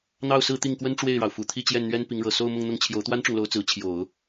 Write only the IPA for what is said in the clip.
n̪ ɑ˥˧ ʊ̯ s ɹ̩˥˧ t̪ i˥˩ ŋ k w ə˥ n ʈ͡ʂ w e˥˩ ɪ̯ ɻ ɑ˩ ʊ̯ f u˨˩ t̪ʰ i˥˧ t͡ɕ j ɛ˥˩ n n̪ ɥ ɛ˥ n p i˧˥ ŋ ɻ ɤ˨˩ s o˥˧ ʊ̯ m ʊ˥˧ ŋ n̪ ʊ˥˩ ŋ t͡ɕʰ j o˧˥ ʊ̯ t̪ w a˥ n ʈ͡ʂ ʊ˨ ŋ l o˧˥ ʊ̯ t͡s ɹ̩˧˥ t͡ɕʰ j o˨˩˦ ʊ̯

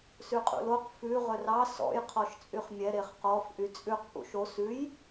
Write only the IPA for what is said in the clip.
s ʉ qʼ ṵ l o q f ʉ ʁ ɵ r ɑ s ɔ̰ j qʰ ɔ ʃ t͡sʼ y χ mʲ ɛ ɾ e χ q ɔ f ʔ y t͡sʼ ʉ q p ṵ ʃ o s ʉ j

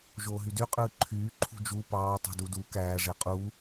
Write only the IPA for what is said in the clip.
ʒ oː ɦ y d y qʼ ɯː ǃʰ yː ǃʰ ṳ d͡ʒ u p ɑː tˤ ṳ d u d u k æː ʐ e qʼ u

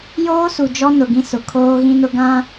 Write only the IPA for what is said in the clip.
j oː˦ s u˨ d͡ʒ ɔ˦ n ʊ˨ ɡ ĩ˦ s ʊ˨ kʰ oː˦ ɣ ĩ˦ n ʊ˦ ɡ ã˦

